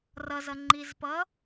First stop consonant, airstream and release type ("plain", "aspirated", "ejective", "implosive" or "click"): click